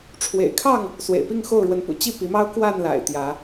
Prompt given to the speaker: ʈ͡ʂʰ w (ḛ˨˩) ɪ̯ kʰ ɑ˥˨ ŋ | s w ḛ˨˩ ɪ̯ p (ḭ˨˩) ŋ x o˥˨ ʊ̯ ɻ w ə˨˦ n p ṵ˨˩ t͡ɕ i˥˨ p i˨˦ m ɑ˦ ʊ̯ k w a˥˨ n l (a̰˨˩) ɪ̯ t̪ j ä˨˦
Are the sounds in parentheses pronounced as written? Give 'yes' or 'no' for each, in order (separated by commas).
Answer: yes, no, yes